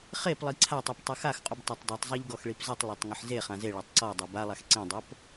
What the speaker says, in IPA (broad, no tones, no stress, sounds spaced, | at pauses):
χ e p lˠ i ǀʰ a tˤ i p tˤ ɨ x a x qʼ u b tˤ a tˤ dˤ i tˤ zˤ e ʎ ɡ ɔ x ɭ i p z ɨ tˤ lˠ o tˤ ŋ ɨ ħ z e χ ã z e ɭ a tˤ ǀ ɔ dˤ e b a lˠ a x ǀ ĩ dˤ o p